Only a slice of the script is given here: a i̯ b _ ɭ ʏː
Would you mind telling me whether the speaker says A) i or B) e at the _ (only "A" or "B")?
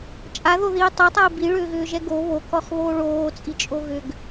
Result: A